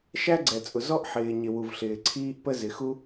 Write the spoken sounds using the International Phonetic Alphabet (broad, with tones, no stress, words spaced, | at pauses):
ʃæ˥ɡ͡ǀɛ˩t͡sʼʊ˩ zɔ˥ʔħɪː˩ɲɪ˩ wu˩vɬɪː˩ǀʰiː˥ʔpə˥ zɪ˩xu˥